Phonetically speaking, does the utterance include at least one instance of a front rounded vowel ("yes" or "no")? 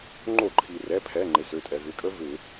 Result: yes